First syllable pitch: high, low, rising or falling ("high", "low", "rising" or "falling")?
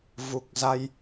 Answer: low